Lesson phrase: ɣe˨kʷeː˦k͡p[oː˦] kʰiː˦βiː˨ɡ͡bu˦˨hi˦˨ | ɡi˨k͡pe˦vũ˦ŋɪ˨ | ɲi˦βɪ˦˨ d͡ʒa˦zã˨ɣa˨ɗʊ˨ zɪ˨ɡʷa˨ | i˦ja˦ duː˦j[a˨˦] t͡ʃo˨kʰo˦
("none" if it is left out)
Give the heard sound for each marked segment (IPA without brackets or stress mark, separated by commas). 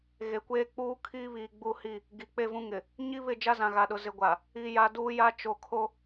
uː˦, a˦